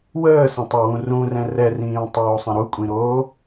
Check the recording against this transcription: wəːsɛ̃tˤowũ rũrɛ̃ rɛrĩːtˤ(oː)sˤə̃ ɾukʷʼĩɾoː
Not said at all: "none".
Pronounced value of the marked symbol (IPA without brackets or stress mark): oː